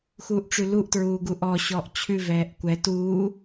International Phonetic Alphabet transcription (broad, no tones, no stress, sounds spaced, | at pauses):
x uː ʔ ʈ͡ʂ ʉ l u ʔ t ɹ uː ɡ u ʔ ɔ ɕ ɔː ʔ t͡ɕʰ ʉ v ɛː ʔ kʷ ɛ t uː